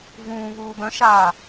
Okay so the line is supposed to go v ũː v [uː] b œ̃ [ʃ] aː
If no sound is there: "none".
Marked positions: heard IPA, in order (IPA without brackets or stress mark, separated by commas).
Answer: uː, ʃ